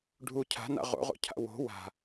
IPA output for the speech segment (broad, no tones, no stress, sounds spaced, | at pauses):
ɖʱ u cʰ a̤ n a̰ ʁ o̰ ʁ o̰ cʰ a̰ w o̤ w a̤